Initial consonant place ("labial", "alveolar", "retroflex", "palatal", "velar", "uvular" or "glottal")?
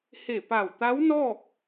glottal